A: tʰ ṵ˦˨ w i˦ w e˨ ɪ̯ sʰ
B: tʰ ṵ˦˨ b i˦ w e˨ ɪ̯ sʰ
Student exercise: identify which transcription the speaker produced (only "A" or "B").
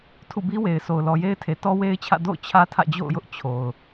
B